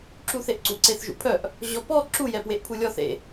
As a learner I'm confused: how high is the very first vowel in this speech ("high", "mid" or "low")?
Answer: high